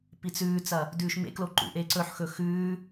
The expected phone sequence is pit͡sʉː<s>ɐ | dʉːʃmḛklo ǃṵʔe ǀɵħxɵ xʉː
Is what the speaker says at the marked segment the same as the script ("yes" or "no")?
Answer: no